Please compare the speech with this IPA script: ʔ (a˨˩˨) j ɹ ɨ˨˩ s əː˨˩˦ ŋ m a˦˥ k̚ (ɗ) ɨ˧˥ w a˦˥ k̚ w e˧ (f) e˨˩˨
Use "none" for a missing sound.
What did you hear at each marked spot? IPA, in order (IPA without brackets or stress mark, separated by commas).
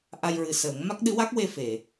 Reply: a˧, ɗ, f